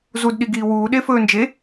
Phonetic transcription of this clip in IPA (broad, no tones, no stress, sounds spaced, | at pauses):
z u d ɗ i ɡ iː w uː ɗ e f ɵː n d͡ʒ e